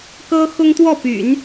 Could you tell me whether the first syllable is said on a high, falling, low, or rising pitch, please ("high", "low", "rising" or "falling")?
high